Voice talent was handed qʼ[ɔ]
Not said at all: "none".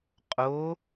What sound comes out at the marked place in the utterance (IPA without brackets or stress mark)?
o